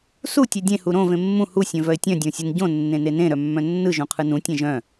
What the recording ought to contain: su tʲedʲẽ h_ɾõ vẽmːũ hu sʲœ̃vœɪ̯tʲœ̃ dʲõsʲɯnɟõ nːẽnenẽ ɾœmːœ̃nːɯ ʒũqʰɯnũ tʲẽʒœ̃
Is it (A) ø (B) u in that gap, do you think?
B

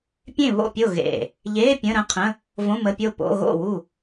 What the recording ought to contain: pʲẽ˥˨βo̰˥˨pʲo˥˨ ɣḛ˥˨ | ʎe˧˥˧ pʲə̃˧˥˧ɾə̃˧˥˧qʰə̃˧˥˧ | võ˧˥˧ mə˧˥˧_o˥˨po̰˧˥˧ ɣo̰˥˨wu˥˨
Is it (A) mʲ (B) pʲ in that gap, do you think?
B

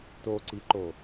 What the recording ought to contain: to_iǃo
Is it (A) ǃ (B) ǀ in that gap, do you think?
B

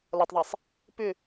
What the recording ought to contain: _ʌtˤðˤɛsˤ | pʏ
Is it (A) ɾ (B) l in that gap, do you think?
B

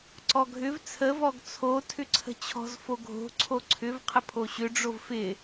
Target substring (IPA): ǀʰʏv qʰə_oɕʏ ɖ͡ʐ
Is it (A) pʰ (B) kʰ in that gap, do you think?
A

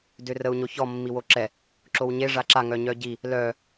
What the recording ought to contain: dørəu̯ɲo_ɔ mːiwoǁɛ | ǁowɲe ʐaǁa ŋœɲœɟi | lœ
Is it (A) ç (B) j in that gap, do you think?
A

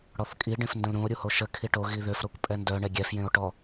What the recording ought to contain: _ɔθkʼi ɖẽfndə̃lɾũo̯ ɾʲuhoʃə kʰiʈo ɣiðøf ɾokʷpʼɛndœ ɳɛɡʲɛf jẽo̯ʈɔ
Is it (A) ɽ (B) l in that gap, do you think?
A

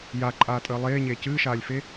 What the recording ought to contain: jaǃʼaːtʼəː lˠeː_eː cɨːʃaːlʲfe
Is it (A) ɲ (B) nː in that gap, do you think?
A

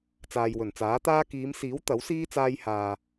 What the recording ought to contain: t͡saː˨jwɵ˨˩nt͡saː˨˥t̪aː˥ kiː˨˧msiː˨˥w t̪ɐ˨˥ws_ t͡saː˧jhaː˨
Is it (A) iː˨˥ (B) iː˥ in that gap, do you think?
B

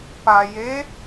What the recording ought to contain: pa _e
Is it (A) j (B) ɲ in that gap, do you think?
A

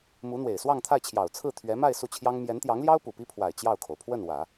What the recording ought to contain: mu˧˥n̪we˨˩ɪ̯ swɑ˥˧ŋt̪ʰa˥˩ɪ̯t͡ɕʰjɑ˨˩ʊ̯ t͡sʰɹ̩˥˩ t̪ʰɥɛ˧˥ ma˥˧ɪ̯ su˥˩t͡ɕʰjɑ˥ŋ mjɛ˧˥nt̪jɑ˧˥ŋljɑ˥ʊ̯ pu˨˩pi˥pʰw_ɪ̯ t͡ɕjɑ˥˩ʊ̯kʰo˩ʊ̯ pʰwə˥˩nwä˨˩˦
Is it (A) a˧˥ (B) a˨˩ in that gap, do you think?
B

